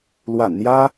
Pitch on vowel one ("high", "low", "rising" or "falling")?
low